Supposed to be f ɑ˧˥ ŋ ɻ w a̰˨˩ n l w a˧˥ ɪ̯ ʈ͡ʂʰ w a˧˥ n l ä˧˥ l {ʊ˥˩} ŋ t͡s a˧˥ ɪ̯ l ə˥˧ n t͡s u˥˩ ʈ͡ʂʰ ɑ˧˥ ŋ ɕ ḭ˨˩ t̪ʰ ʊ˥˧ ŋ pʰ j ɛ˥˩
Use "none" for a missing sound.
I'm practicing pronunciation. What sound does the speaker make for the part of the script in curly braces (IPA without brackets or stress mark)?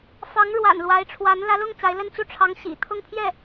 ʊ˥˩